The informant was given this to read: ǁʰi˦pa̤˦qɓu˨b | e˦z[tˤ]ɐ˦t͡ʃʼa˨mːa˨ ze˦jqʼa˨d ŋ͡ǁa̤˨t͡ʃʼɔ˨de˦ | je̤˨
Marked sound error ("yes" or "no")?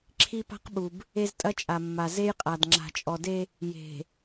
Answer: yes